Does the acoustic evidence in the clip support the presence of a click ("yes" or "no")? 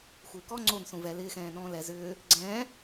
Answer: yes